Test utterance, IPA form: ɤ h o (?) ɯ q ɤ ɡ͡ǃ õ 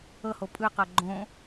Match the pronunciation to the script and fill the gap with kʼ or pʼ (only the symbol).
pʼ